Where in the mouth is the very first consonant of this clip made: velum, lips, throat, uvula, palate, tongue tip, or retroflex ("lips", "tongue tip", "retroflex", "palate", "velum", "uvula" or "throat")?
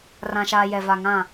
tongue tip